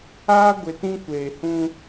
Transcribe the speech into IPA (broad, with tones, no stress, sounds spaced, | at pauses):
aː˦ ɡʷ ɪ˨ t ĩ˦ kʷ eː˨ h ũ˦